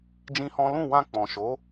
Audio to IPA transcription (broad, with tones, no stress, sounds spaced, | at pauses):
d͡ʒ ĩ˦ h ɔ̃˦ l ũ˦˨ w ã˧ k͡p ɔ̃˨ ʃ o˨˦